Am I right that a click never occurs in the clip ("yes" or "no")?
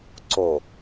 no